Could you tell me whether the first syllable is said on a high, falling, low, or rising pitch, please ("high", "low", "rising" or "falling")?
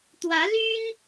rising